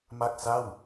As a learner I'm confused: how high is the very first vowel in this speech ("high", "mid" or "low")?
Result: low